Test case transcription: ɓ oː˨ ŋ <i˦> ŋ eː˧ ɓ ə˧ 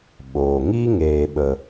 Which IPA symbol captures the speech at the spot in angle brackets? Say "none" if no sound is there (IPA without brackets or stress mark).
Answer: i˦